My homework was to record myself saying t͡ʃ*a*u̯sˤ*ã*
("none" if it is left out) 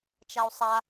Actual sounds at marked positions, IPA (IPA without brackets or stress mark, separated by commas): a, a